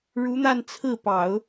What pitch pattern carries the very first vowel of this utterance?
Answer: rising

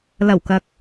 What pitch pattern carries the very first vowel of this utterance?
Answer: low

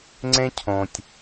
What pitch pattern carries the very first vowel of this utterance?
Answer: high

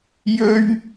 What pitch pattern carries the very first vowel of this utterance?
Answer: high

